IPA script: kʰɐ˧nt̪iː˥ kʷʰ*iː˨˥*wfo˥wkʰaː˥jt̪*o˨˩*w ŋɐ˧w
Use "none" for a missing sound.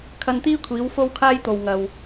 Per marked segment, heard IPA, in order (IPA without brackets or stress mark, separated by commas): iː˨˥, o˨